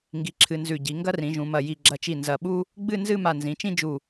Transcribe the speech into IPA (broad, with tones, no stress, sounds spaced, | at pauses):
ŋ ɡ i˧ ǁʰ ɨ˧ n z ʉ˧˩ ɟ i˩˧ ŋ ɡ ɐ˥ r ĩ˩˧ ʒ ũ˩˧ m ɐ˧˩ j i˧˩ ɡ͡ǁ ɐ˧˩ t͡ʃ i˧˩ n z ɐ˧˩ ɓ u˥ | ɡ͡b ɨ˥˧ n z ɨ˥˧ m a˧˩ n z ĩ˩˧ t͡ʃ ĩ˥ d͡ʒ u˧˩